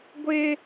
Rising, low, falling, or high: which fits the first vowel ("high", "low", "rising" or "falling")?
high